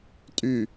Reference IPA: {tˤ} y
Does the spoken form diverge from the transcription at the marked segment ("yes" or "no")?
yes